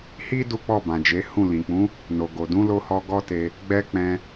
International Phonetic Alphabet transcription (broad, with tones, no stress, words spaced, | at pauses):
hi˦ du˦k͡pɔ˦˨bã˨d͡ʒe˨˦ hũ˦˨ lĩ˨k͡pũ˨˦ | no˨ɡo˨ dũ˨˦lo˧hɔ˧ ɡɔ˦te˧ | ɡ͡bɛ˧ k͡pɛ̃˧